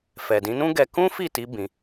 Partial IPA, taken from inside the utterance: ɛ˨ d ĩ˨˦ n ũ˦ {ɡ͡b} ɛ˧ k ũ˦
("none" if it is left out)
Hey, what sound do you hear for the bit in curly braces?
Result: ɡ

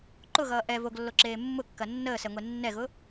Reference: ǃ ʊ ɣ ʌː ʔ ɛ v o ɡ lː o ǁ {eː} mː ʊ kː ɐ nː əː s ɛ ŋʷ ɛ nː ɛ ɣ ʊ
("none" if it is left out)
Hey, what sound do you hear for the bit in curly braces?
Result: eː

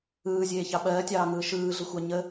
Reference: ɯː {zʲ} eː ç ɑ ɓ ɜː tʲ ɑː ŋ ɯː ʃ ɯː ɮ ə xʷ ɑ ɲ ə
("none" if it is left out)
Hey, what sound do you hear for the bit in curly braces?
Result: zʲ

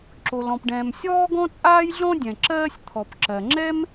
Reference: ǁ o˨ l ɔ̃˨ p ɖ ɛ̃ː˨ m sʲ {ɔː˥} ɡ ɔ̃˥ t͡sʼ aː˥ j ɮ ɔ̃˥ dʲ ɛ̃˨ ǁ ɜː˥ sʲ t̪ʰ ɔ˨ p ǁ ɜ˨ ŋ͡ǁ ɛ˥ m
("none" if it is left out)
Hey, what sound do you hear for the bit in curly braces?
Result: ɔː˥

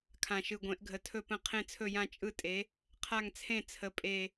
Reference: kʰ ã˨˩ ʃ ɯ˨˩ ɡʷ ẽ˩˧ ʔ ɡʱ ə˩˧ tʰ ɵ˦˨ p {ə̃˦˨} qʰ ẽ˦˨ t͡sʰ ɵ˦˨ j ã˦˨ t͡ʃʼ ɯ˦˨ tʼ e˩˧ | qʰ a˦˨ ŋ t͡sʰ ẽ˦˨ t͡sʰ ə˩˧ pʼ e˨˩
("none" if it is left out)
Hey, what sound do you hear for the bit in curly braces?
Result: ə̃˦˨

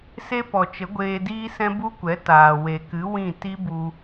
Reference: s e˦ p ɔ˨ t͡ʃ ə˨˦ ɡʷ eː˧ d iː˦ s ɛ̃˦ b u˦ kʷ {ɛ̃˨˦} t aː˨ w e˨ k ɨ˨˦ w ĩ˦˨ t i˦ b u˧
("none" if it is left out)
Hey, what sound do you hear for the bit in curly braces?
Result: ɛ˨˦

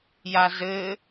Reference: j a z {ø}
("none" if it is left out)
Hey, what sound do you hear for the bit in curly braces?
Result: ɘ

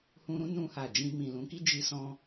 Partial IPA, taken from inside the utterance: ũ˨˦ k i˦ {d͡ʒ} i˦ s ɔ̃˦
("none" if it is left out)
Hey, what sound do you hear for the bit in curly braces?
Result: d͡ʒ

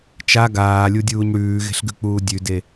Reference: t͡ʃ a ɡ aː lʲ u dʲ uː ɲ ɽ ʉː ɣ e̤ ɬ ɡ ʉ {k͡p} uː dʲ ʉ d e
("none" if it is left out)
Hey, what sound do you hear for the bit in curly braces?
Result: k͡p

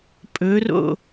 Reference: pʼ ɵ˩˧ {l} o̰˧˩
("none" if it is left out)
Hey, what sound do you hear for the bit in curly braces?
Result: r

